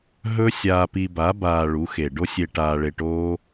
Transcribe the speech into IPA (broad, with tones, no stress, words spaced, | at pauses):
ɦɵ˦sʲaː˧pi˧ba˨˦ baː˧ɭu˨˦xe˨ ɖo˦sʲe˧ ʈaː˧ɭe˧ʈoː˦